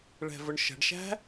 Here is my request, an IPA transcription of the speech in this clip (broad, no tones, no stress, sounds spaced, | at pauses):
ɭ ɛ̤ v ʊ ɳ ʃ ə̤ ɖ ʃ æ̤